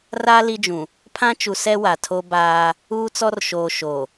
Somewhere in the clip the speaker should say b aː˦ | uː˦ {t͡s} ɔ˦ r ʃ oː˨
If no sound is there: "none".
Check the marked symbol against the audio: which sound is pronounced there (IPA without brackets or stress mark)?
t͡s